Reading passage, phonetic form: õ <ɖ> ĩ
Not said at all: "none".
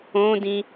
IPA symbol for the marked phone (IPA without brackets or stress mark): d